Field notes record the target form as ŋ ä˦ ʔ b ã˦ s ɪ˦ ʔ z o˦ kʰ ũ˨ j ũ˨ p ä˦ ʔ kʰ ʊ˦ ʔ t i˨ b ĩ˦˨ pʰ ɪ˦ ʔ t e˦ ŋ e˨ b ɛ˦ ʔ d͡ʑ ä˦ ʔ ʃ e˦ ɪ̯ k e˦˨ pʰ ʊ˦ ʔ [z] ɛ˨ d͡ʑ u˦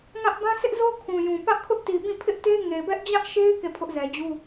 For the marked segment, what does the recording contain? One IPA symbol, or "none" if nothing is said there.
z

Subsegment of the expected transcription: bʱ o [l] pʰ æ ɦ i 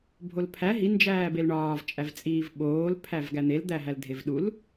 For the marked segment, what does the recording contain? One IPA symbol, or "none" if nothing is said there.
l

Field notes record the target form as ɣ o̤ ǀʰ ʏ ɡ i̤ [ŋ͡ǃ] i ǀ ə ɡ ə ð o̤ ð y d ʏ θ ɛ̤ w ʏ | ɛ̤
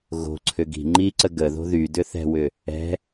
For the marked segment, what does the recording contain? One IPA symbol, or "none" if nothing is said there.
ŋ͡ǃ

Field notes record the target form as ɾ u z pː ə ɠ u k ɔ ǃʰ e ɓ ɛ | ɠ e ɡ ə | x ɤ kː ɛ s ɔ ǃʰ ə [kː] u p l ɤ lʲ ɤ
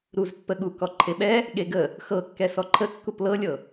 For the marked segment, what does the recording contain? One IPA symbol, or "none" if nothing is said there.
kː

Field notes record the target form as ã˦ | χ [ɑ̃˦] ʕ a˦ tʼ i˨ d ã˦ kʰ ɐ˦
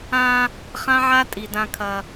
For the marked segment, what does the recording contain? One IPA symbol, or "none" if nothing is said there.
ã˦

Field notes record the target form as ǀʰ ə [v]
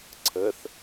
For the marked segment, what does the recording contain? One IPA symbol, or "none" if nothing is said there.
θ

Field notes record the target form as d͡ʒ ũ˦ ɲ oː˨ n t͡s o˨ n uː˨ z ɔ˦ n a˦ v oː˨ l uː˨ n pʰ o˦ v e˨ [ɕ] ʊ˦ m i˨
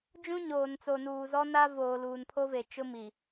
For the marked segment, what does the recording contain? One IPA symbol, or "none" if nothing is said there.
t͡ʃ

